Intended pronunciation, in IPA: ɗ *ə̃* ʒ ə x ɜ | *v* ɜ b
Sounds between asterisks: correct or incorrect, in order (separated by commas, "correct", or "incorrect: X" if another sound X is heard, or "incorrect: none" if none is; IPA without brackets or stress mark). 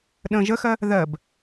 correct, incorrect: ð